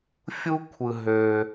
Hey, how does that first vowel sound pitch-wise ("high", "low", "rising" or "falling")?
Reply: high